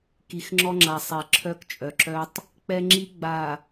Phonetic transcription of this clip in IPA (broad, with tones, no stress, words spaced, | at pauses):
ki˨xŋ͡ǁɔ˦ŋ͡ǁa˨ sˤɛ˨ ǁʰœ˦kt͡ʃʼœ˨ǁœ˦tˤ | k͡pɛ˦ŋ͡ǁi˦ɡ͡ba˨